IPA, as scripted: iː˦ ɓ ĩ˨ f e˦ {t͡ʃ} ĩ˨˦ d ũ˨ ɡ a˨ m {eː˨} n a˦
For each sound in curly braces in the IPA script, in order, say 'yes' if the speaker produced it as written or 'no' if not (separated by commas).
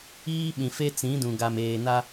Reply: no, yes